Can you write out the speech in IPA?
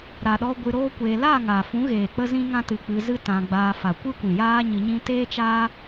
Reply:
ɾ a˨ ɗ ɔ˧ ɡʷ ɨ˧ ɾ oː˦ kʷ eː˧ l a˦˨ ŋ a˨ f ũ˨˦ ɣ eː˨ k͡p ə˦ z ĩ˦ ŋ ã˦ t ɨ˧ k͡p ɨ˧ z ɨ˦ t ã˧ ɡ͡b aː˧ f a˨ kʷ ɨ˦ kʷ ĩ˨ j aː˦ ɲ ɨ˧ ɲ ĩ˦ t eː˦ t͡ʃ a˦

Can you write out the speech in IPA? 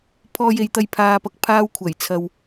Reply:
pʰ ɔː˧ j e˨ j t̪ ɐ˧ j pʰ aː˨ p ɐ˧ k̚ pʰ aː˧ w kʷʰ ɐ˨˩ j t͡sʰ ɐ˨ w

